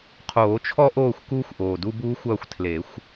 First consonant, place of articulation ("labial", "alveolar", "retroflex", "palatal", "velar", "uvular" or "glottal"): uvular